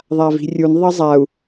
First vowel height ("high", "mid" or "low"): low